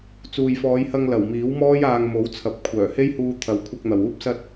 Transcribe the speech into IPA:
t͡s uː˨ j f ɔː˨˧ j h ɐ˧ ŋ l ɐ˨˩ w m iː˨˥ w m ɔː˥ j aː˧ ŋ m o˨˥ w t͡sʰ ɐ˨ p̚ kʷʰ œː˨˩ h e˥ j h uː˧ t̪ʰ ɐ˨˥ w kʷʰ ɐ˧ k̚ n̪ ɐ˨ w uː˥ p̚ s ɐ˥ t̚

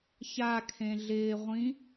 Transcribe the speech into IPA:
ç a kʰ ẽ ɮ ɪː ʁʷ ĩ

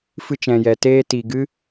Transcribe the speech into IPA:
f ɨ˧ t͡ʃ ɛ̃˨ j ɛ˨ t eː˧ t i˨ ɡ ɨ˦

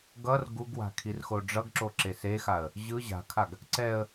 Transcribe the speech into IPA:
ɡ ʌ r ɡ u ɡ w a̤ kʰ i r x o ɖ͡ʐ ʌ ɡ ǁ o ǁ e s e x a ə̯ | ʑ ɯ ʑ a̤ kʰ a ɡ | ǀ ɛ ə̯

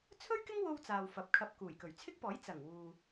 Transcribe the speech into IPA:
t͡sʰ ɵ˥ ɥ k ɪ˥ ŋ w o˧ w t͡s aː˨ w f ɐ˨˥ p̚ kʰ ɐ˧ p̚ k uː˨˩ j k ɵ˨˩ ɥ t͡sʰ ɪ˥ k̚ p ɔː˨˥ j t͡s ɐ˨˩ ŋ w uː˨

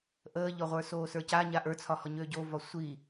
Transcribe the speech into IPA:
ʔ əː ʎ ɔ ʁʷ ə˞ s oː s ə˞ c a ɲ a ʔ ə˞ t͡sʰ ɒ h ɔ ɲ øː ɟ o v ɒ sʷ i

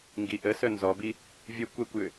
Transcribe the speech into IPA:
ŋ ɡ i ʔ ə s œ n z ɔ b i | vʲ ə kʷ ɛ kʷ j ʏ

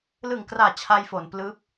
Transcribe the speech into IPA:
l ɯ˨˩ ŋ k r aː˨˩ t͡ɕʰ a˧ j f o˩˦ n p l ɯː˦˥ p̚

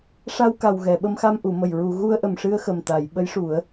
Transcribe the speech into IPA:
ʂ a˧ w k a˨˩ w ɣ ɛ˨˩˨ ɓ ə˧ m x a˧ m ʔ u˨˩˨ m ə˨˩ j ɹ u˨˩˨ ɣ u˧ ə̯ ʔ ə˨˩ m ʂ ɨ˧ ə̯ x ə˨˩ m t̪ a˨˩˨ j ɓ ə˧˥ j ʂ u˨˩˦ ə̯

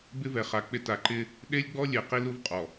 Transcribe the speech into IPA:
b ɪ˦ v ɛ˨ χ a˨ k͡p ɪ˦ t a˨ ǃ ɪ˦ | ɗ e˦ lʲ ɡ͡b ɔ˦ lʲ e˨ q i˦ l u˦ v qʼ ɔ˨

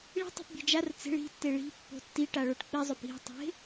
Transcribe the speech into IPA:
ɭ i̤ tˤ e̤ p bʲ e̤ d͡ʒ a r t͡s e̤ ɭ i̤ tː e ɭ i̤ pː o̤ tː i ʈ a ɭ o ʈ k͡p i zˤ o p i̤ tˤ e̤

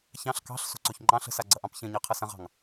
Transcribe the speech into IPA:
ç ɑ̃ ɬ k ɑ̤ ɬ s o̤ ǀ o ç ŋ͡ǃ ɑ̃ ɬ ə̤ s a ɡ͡ǀ ɐ ʔ ɑ̃ p ç ɐ̃ ɲ ɑ qʰ ɐ s ɐ̃ ʁ ɑ̤ ŋ

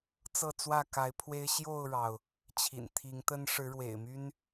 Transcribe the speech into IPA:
t͡s ɤ˥˨ t͡s w ä˥˨ k a˨˦ ɪ̯ pʰ w e˦ ɪ̯ ɕ j o˥˨ ʊ̯ ɻ ɑ˩ ʊ̯ | t͡ɕʰ ḭ˨˩ n t̪ʰ i˨˦ ŋ t̪ ə˦ n ʂ ɻ̩˨˦ ɻ w ḛ˨˩ ɪ̯ m y˦ n

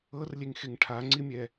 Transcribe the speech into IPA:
ɤ r lʲ e ŋ x e ŋ ʈʰ a ŋ͡ǀ i mʲ ɛ

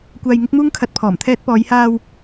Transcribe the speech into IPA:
kʷ aː˧ j ŋ ɪ˥ k̚ m uː˥ ŋ kʰ ɐ˧ t̚ pʰ ɔː˨˩ m t̪ʰ ɛː˧ t̚ p ɔː˨˧ j h aː˧ w

